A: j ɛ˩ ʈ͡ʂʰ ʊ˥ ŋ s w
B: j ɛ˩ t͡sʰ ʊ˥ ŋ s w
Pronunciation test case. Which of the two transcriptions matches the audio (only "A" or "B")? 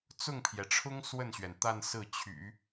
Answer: A